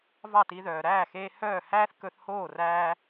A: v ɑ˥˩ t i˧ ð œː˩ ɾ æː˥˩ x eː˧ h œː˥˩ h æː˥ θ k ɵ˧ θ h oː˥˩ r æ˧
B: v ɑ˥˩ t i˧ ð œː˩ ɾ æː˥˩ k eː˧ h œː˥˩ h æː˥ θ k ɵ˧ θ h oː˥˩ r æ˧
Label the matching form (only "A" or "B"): A